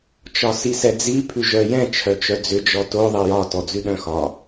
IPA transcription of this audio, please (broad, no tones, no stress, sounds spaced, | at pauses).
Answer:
t͡ʃ ɒ s i s ɛ d͡z i pʰ ʉ ʒ œ j ɛ̃ t͡ʃʰ œ t͡ʃ œ d͡z ʏ d͡ʒ ɔ t o ðˤ ɛ j ɒ t ɔ d͡z ʉ ɗ œ̃ x ɒ